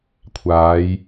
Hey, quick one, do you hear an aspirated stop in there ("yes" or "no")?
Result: yes